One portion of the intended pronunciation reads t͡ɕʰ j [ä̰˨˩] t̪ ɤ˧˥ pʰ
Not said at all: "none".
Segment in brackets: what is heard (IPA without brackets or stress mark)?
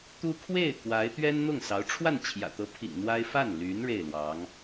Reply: ä̰˨˩